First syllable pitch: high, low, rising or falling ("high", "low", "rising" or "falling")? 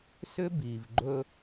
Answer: high